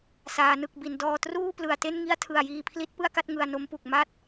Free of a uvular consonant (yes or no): yes